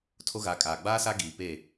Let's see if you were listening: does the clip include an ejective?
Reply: yes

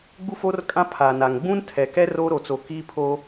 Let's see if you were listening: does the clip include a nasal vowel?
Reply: yes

